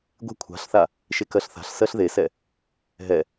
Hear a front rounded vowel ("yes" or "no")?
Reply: no